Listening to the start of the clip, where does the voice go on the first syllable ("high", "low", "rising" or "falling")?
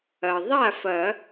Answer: low